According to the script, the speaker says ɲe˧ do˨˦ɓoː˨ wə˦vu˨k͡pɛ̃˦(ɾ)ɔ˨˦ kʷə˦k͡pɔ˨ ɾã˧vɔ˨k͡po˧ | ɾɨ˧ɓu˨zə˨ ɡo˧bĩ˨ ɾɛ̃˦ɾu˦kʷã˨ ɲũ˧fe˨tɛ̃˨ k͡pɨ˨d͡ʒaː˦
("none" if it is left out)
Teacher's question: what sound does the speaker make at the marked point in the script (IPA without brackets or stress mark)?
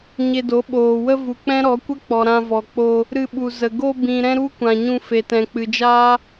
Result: ɾ